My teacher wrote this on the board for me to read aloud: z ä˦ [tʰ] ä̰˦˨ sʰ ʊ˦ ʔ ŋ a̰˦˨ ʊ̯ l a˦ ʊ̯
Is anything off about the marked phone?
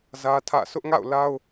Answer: no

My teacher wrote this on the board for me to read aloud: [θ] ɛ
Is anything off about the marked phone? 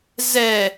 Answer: yes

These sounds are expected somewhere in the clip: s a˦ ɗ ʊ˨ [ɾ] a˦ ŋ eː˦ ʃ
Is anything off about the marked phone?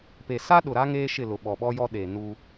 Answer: no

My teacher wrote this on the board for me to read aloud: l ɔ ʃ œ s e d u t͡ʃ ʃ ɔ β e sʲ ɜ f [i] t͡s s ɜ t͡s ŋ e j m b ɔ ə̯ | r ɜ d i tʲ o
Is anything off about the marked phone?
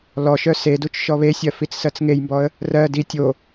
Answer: no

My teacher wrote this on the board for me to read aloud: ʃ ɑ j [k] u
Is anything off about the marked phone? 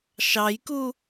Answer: no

